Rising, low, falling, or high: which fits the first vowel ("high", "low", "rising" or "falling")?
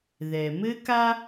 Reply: low